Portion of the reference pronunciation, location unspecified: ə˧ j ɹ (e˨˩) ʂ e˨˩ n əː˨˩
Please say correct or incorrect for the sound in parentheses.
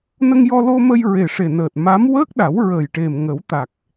correct